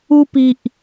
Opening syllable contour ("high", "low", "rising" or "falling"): high